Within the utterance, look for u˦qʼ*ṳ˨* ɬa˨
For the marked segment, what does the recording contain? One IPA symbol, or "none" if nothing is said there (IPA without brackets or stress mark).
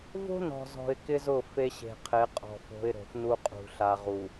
ṳ˨